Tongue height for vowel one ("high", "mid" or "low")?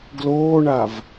mid